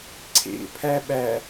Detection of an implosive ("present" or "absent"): present